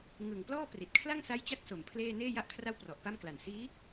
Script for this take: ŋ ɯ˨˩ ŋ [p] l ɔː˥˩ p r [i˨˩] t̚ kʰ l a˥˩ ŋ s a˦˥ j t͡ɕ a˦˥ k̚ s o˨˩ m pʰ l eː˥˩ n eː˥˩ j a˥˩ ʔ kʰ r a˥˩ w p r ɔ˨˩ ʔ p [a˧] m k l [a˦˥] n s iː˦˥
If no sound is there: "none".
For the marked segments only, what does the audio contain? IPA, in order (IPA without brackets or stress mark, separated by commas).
p, i˨˩, a˥˩, a˨˩